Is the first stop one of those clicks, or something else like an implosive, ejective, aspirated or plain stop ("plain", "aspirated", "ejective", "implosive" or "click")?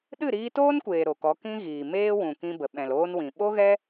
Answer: implosive